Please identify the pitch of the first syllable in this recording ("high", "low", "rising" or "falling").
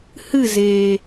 falling